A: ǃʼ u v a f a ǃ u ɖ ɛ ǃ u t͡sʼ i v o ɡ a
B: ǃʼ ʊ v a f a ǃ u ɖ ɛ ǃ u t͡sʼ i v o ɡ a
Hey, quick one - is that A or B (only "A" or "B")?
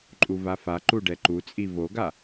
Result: A